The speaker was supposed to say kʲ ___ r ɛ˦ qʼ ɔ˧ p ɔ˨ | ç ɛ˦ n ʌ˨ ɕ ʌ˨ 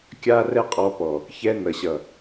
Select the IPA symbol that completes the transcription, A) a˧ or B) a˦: B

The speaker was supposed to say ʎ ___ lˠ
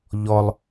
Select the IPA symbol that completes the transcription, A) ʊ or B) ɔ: B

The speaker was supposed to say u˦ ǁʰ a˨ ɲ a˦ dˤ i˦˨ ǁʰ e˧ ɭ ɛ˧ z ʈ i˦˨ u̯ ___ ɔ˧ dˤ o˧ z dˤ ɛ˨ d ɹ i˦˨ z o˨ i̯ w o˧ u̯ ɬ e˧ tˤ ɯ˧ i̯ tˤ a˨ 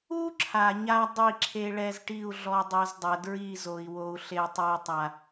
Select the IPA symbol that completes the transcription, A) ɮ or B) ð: A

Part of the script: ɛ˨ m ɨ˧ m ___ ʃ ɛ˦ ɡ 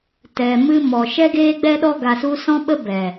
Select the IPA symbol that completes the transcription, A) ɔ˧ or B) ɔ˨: B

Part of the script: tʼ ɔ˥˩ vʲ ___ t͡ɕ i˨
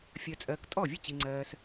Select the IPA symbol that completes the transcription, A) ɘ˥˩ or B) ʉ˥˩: A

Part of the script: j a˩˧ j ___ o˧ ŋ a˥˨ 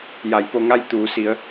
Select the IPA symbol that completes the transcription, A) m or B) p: B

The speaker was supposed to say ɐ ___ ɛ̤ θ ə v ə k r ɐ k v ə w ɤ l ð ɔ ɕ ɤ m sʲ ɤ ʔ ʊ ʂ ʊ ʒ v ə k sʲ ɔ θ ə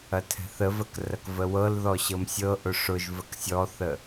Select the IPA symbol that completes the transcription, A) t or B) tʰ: B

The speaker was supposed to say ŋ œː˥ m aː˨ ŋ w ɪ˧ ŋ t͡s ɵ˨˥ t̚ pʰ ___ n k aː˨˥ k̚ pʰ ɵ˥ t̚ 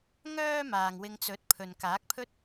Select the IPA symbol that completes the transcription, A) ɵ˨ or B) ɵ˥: A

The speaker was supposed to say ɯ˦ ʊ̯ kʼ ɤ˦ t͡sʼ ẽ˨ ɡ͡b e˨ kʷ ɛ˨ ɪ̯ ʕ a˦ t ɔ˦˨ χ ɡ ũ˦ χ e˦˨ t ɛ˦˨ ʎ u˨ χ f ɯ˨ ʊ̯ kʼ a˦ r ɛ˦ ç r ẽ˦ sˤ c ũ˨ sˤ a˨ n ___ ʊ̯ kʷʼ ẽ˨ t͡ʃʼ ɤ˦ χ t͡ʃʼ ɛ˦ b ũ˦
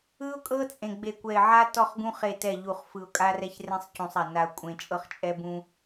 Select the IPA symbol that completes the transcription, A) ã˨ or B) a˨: B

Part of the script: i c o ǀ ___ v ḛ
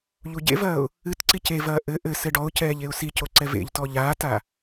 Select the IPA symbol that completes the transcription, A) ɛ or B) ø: A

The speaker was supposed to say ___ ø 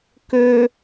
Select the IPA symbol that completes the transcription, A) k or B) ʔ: A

